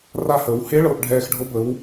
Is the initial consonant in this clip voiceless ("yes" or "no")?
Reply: no